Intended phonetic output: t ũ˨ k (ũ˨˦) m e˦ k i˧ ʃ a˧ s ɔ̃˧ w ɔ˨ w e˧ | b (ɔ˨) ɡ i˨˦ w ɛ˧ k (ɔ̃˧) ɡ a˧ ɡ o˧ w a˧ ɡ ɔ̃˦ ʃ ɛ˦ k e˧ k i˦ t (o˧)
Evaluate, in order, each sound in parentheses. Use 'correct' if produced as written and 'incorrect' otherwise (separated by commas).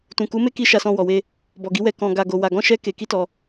incorrect, correct, correct, incorrect